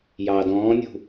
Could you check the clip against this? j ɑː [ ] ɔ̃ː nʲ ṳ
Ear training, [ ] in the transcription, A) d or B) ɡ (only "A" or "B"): A